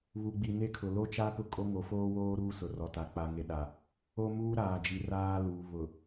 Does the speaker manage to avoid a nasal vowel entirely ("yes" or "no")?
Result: yes